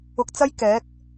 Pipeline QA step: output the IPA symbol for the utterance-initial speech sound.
ʊ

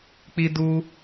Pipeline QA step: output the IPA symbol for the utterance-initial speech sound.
k͡p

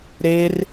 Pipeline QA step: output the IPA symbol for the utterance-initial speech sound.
ɾ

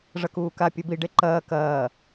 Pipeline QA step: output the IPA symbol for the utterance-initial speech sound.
ʐ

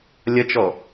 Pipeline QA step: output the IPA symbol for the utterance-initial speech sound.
lʲ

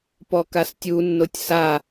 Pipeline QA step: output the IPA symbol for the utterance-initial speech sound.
p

